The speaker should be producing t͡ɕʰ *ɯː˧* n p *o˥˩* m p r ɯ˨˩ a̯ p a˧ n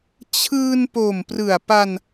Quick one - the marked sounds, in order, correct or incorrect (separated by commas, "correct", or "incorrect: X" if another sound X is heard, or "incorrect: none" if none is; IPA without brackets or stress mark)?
correct, incorrect: o˨˩